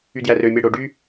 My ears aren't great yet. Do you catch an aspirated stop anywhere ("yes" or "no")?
no